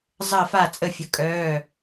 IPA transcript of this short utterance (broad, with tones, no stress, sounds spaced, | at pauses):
zˤ əː˥˨ f a˥˨ t͡sʼ ə˥˨ fʲ ə˩˧˩ kʼ œː˩˧˩